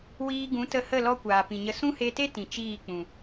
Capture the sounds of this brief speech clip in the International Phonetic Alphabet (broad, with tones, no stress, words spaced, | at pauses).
wiː˧ɡũ˨˦tə˧hə˦˨ lɔ˦kʷaː˨pĩ˨ɲə˧ sũ˦he˧te˦ tĩ˨t͡ʃiː˦˨k͡pũ˨